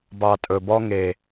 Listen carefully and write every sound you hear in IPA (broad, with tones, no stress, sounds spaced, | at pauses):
b ɑ˨ tʼ ɵ˨ b ɔ˧ ŋ e˨